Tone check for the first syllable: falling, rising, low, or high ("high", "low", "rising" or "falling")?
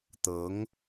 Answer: rising